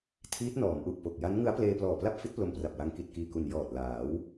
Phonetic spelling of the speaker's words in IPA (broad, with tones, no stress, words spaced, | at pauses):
tʰiː˦˥t̚nɔː˩˦mʔu˨˩ʔ po˨˩k̚ ja˦˥nŋɯ˦˥a̯pleː˧ plɔː˨˩pla˥˩p̚fi˦˥t̚ plo˧mpra˨˩p̚wa˧ŋ ki˨˩t̚kiː˨˩ku˨˩n jɔː˨˩t̚ laː˩˦w